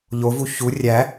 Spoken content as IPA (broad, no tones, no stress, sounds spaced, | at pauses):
ʎ o v u ç u rʲ æ